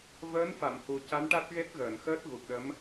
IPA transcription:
vəː˧˥nfa˨˩˨mhu˨˩ ca˧˥nʈa˦˥t̚ɣe˦˥t̚ ɣəː˨˩˨nxəː˦˥t̚ ɣu˨˩k̚ɗə˧˥m

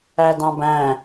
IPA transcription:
ædɑ̃bæ̃

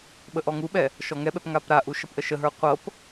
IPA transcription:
ɓəʔɔŋuɓɛ | ʃɔŋɛɓɛp ŋapɾaʔu ʃʌpʔəʃəɦə˞ qʷɤp

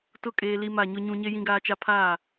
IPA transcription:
tʊ˦˨kʼeː˨ li˦ma˦˨ɲʊ˦ɲũ˦ ɲe˦jĩ˦ɡaː˦t͡ʃa˦ pʰaː˦˨

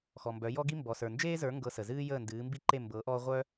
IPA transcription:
xɔ˩mbœ˩˥jɔ˥ɡi˥ mbɔ˩sə˞˩nd͡ʒeː˥zə˞˩˥ ŋɡɤ˧sə˩zɨː˥ jəː˥˩ndɨː˩˥mbi˥ǃe˥˩ mbɤ˩˥ ʔɔː˥ ʁʷœ˥

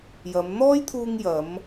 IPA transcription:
jɐ˨˧m n̪ɔː˥jt̪ʰuː˧ŋ jɐ˨˧m

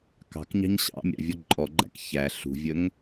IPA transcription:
kɑ̤kɲɑ̤ɲ ɕɑ̰ mʲɑ̰vʲɔǃʼɔɡ͡ǃæ̰k çæ ɬṳvʲəŋ

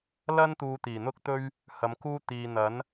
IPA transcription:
lɐ˥n t̪uː˧t̪iː˨˩n̪ʊ˥k̚t̪ɵ˥ɥ | hɐ˨˧mkuː˥ t̪iː˨n̪ɐ˨˥n

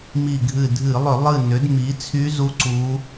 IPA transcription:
mi˧˩ɡʱɨ˧˩dʱɨ˧˩˧lˠʏ˧˩˧ lˠɨ˧˩nʏ˩˧dmi˩˧ t͡sʰy˧˥zu˧˥ ǀu˧˥

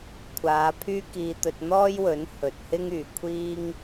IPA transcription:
kʷʰaː˨˧pʰyː˥kiː˧t̪ɵ˧t̚ n̪ɔː˥jwɵ˨˥n hɵ˨t̚hɪ˥ŋ yː˨kʷʰiː˥ŋ

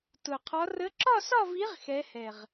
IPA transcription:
tʊ˨˩qʰɒ˧˥ rə˧˥ ǁɒ˥˧sɒ˥˧vi˧˥ʁ xɛ˧˥hɛ˨˩ʁ

